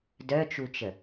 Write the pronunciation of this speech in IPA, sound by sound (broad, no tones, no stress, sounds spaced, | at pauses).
d œ t͡ʃ u t͡ʃ ə